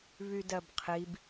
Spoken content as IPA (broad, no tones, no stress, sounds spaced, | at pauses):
β y d ɜ b qʰ i b